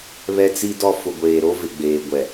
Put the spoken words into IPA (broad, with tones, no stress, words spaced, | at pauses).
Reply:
βɛ˦t͡si˦dɔ˦ fʊ˨ɡʷeː˨ɾo˦vɪ˨ ɡ͡beː˨ɡʷɛ˨